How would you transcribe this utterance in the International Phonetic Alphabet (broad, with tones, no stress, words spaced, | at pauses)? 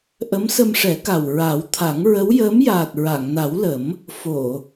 ʔə˧˥msə˧mʂɛ˨˩˦ka˨˩w ɹa˨˩˦wt̪ʰa˨˩˦ŋ ɹə˧˥wjəː˧˥m jaː˨˩t̚ ɹa˨˩˨ŋna˨˩˦wlə˨˩˦m | fo˨˩˨